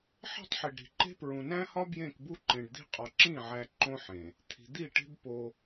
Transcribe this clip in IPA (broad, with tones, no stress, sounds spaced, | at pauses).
ħ e̤˦ tˤ ħ i˨ ɖ ɾ i̤˨ ǃ e̤˦ p ɹ ũ˨ n æ̃˦ h ɒ˦ b j ẽ˦˨ k b u˦ ǃ ẽ˨ ɖ d̪ i̤˦ qʼ ɒ˨ ǁ ĩ˦˨ ʕ æ˨ ǃ õ˦ ħ ẽ˨ | t̪ʰ i̤˨ d̪ i˦˨ ʈ e̤˦ b p o˦